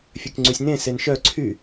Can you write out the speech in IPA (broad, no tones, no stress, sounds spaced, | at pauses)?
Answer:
fʲ ø k ŋ͡ǀ y sʲ n ẽ s e n ʃ œ ǀʰ y